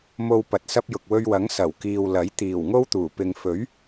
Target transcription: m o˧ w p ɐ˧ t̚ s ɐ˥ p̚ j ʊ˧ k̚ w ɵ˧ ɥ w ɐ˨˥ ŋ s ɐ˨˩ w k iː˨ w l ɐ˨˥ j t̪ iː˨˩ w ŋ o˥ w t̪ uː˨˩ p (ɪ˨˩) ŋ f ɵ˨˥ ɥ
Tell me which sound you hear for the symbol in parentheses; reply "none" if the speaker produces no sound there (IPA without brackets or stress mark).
ɪ˨